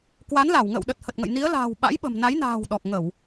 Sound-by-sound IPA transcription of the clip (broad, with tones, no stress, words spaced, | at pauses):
kwa˨˦nla˧˩w ŋə̰ː˧˨wɗə˨˩t̚ hə˨˩t̚ŋə̰˧˨j ni˨˦ə̯la̤ː˨˩w ɓa̰˧˥jɓə̤˨˩mna˨˦jna̤ː˨˩w ɗɔ˨˩k̚ŋə˧˩˨w